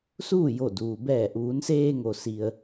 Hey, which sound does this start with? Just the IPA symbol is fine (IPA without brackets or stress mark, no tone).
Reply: s